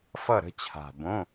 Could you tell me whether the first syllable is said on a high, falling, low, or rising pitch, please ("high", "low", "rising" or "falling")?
falling